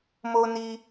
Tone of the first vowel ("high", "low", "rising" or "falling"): low